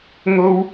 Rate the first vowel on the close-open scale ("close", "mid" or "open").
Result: mid